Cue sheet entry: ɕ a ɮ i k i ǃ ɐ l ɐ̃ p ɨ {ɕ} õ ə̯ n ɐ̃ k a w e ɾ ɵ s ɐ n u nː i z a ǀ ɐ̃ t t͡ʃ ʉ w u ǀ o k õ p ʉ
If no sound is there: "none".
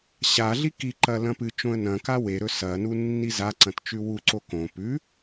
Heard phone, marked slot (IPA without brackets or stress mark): t͡ʃ